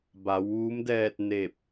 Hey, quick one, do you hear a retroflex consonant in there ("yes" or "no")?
no